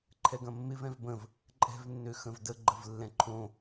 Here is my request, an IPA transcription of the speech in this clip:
ǃʰ ɛ ɡ ɐ̃ mː ɪ v ɛ̃ v b ə̃ v | ǃʼ ɛ̤ v nː ø x ə̃ v d ə ɡ͡ǃ ə v lː ɛ̃ ǃʰ õ

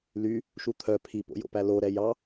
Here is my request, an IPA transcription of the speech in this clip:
l y | ʃ u t̪ʰ œ pʰ i p o̰ j o̰ p æ l o ɾ ɛ j ɑ

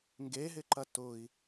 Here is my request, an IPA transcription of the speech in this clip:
ŋ ɡ e ɦ ɪ ǃ ɐ t ʊ i̯

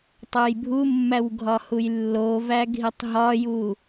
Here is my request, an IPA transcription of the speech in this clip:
tˤ o j bʱ u mː æ w ɡʱ ɒ h u j lː o v æ ɡʱ i tˤ ɦ ɒ j u

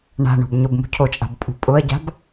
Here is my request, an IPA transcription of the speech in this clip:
ɳ a̤ ɳ o̤ b ɲ o b m ṳ cʰ o t͡ʃʼ a̤ b pʼ ṳ pʼ ʊ ɐ̯ ɟ a̤ b

